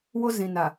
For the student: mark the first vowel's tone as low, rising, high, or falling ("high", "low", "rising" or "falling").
high